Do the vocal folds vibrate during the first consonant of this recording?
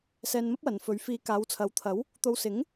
no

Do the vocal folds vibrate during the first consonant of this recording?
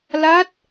yes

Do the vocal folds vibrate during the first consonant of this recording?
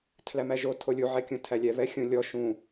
no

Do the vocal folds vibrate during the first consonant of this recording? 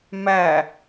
yes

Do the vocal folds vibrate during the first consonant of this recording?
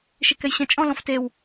no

